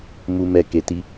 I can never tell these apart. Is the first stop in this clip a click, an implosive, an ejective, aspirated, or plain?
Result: plain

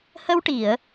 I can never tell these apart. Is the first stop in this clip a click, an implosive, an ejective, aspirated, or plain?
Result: plain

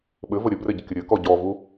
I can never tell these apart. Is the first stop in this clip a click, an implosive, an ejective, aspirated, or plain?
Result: implosive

